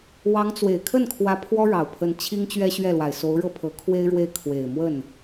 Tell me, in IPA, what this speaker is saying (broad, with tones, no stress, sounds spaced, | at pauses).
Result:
w ɑ˧˥ ŋ t͡s w e˨˩ ɪ̯ kʰ ə˥˩ n kʰ w ä˧˥ pʰ w ɔ˥ ɻ ɑ˨˩ ʊ̯ pʰ ə˧˥ n t͡ɕʰ i˥ ŋ t͡ɕ ɥ ɛ˥ ɕ ɥ ɛ˥˩ l w a˨˩ ɪ̯ s o˧˥ ʊ̯ ɻ ɤ˥˩ pʰ ɤ˧˥ kʰ w e˥ ɪ̯ ɻ w e˥˩ ɪ̯ kʰ w e˨˩ ɪ̯ m w ə˥˩ n